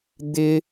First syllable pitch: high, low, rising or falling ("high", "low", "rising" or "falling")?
high